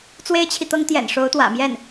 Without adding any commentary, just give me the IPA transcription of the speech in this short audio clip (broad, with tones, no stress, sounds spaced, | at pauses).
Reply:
t͡s w e˥ ɪ̯ t͡ɕʰ i˨ t̪ ɤ˥ ŋ t̪ j ɛ̰˨˩ n ʂ o˧˥ ʊ̯ t̪ w ä̰˨˩ m j ɛ˥˩ n